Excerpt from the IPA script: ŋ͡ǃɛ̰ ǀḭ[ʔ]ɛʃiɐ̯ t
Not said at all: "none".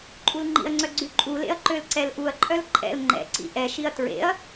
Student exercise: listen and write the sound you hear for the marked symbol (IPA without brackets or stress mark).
ʔ